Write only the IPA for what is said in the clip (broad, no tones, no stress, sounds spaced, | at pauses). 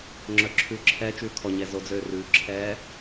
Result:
ŋ͡ǁ œ ǁʰ ʉ ǁʰ ɛ t͡ʃ ʉː kʰ ɔ ɲ ɛ z o d͡z øː r ʉ ǁʰ ɛː